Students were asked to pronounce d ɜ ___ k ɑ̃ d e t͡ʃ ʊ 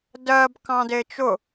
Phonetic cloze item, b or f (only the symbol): b